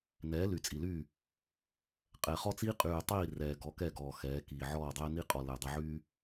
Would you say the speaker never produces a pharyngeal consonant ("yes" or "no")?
no